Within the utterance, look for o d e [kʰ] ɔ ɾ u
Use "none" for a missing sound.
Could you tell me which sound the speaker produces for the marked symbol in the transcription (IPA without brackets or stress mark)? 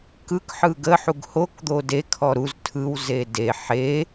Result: kʰ